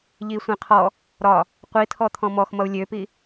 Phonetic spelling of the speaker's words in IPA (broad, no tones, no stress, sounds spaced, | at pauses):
ʎ i sʷ ĩ qʰ ɔ | ɾ ɒ | qʷ i tʰ ɔ t̪ʰ ɔ̃ m ɔ x m ʌ u̯ lʲ ø p i